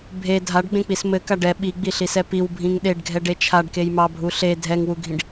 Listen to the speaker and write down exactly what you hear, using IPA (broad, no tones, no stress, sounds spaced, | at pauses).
bʱ e dʱ a ɖ ɡ͡b ẽ k͡p i s m ɘ k a ɖ ɛ ɓ i ɡ͡b i ɬ i s ɛ p i w bʱ ĩ ŋ ɗ e ɖ ɡʱ ɛ ɖ e t͡ʃʰ a ɖ k e j m ɑ bʱ u ɬ e dʱ ɛ ŋ w u ɡʱ ĩ ɖ